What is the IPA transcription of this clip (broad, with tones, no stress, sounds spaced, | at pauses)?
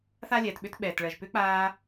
θ a˥ lʲ ɛː˩ t ɓ ʏ˥ t ɓ ɛː˩ t ɭ ɜ˩ ʒ p ʏ˧˥ k͡p aː˧